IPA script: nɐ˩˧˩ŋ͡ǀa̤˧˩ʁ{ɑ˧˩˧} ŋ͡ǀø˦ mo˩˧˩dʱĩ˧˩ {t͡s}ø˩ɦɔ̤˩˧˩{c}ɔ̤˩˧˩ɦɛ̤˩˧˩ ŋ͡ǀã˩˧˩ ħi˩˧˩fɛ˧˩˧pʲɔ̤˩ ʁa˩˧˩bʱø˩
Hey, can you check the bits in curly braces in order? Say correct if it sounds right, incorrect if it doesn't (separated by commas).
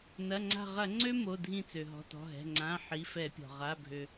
incorrect, correct, incorrect